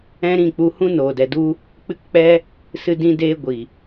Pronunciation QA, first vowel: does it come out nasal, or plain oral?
nasal